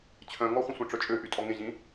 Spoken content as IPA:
t͡ɕʰœ̃ŋɔχʷə̃sʷə̃ ʈ͡ʂœt͡ʃʼøʔy tʼɔŋẽʑĩ

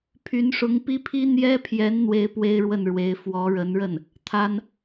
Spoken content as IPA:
pʰy˧˥nʂʊ˧˥ŋ pi˥pʰi˥ n̪jɛ˥pʰjɛ˧˥n n̪we˥ɪ̯pwe˥ɪ̯ɻwə˥˩nɻwe˧˥ɪ̯ fwɔ˧˥ɻə˧˥nɻə˥˩n | t̪ʰa˥n

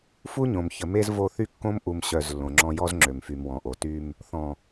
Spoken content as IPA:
fu˦ɲõ˨mçə˨me˦z vo˦˨θy˦kːõ˦mʔu˨m ɕœ˦˨zlːõ˨ŋ͡ǁɔ̃˦ jɔ˦zŋ͡ǁø˨mfy˨m wɔ̃˨ʔo˨ty˦m | θɔ̃˨

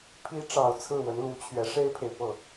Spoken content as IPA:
pʰi˧˥ʈ͡ʂɑ˨˩ʊ̯ t͡sʰɹ̩˥˩wə˧˥nlu˧˥t͡ɕʰɥɛ˧˥ ʂe˥ɪ̯pʰe˨ɪ̯pɤ˥˩

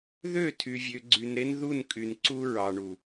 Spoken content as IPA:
ðø˦˨ tʰy˨vʲø˨ɡ͡ǀy˨nɾe˦n ðu˦˨nkʼy˨nǀu˦ ɹɑ˨ɳu˨

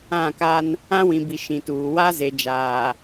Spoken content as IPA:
ã˦˨ka˦n | ã˦wĩ˨bi˨ ʃĩ˨tuː˨ wa˦ze˨d͡ʒaː˨

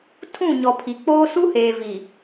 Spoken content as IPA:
tʰũ˦˨ɲɔ˨ pʰi˨k͡poː˦ su˦heː˨vi˨

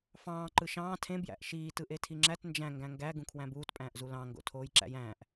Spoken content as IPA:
fɑ̃ː ǃɯʃɑ̃ː tʰẽ bjæ̰ʔʃiː tɯʔetʰiŋ͡ǁæt nd͡ʒæ̃ ŋɡæ̃ŋɡæ ɡũkʰwæ̃buːt pʼæ̃ːʔzulɑ̃ ŋɡo̰tʰoːjǁæ̰jæ̃ːʔ

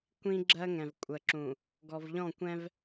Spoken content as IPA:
kʷĩ˦ɡ͡ǁɜ˦ŋɛ̃˨v kʷʼə˨ǁũ˨ | ɡɔ˨vʎɔ̃˦˨kʷɛ̃˦v

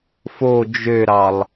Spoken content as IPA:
fo d͡ʒøɾɑlˠ

